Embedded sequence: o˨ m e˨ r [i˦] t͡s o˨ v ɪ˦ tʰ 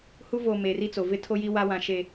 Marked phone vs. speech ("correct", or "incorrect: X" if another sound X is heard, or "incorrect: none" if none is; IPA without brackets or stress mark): correct